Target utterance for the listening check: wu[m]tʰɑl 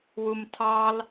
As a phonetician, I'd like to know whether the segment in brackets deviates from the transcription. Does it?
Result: no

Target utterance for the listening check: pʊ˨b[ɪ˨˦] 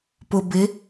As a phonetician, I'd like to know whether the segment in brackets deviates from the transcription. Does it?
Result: no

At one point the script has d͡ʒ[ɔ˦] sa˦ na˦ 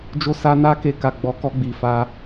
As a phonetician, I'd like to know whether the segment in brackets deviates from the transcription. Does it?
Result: yes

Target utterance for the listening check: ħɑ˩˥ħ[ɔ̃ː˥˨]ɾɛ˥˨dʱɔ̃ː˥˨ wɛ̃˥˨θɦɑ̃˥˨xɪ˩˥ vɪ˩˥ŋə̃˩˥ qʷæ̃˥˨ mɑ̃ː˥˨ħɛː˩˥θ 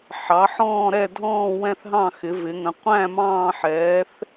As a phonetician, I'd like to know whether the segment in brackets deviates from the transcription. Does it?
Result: no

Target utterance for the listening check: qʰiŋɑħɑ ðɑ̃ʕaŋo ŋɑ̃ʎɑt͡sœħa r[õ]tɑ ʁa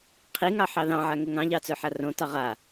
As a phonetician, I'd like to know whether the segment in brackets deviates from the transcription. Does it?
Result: no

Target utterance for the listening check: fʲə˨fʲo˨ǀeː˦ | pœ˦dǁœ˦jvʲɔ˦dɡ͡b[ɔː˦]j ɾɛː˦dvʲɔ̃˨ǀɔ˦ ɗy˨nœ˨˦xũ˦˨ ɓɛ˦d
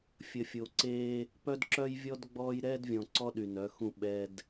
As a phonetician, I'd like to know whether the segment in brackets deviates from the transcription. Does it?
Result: no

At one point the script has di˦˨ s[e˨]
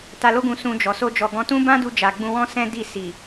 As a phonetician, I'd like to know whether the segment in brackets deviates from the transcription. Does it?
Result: yes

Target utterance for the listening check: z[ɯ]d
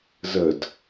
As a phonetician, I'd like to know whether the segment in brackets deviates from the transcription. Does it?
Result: yes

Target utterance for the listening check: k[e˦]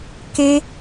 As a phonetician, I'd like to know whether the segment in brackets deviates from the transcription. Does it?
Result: no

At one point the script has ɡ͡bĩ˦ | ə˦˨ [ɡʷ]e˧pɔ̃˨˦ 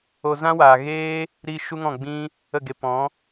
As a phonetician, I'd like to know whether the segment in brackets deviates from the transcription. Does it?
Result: yes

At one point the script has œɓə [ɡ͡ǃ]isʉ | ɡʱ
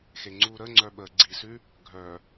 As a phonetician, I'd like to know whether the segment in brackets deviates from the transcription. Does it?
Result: yes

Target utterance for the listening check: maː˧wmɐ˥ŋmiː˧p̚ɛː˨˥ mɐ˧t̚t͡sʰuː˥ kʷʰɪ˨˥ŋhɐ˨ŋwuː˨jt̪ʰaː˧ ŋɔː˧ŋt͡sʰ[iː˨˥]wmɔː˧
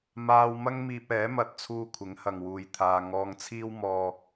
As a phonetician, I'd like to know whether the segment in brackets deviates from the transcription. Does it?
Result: yes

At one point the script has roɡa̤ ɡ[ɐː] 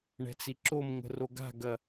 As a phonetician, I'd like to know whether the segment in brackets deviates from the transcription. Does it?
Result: yes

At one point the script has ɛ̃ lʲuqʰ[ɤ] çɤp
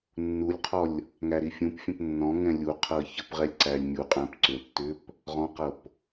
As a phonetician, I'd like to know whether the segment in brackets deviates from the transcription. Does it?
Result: no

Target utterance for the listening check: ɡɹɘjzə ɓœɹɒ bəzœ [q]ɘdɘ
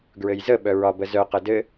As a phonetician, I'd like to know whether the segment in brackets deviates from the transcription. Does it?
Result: no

